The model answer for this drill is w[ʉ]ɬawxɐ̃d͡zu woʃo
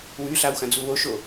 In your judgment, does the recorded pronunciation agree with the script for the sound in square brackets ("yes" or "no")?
yes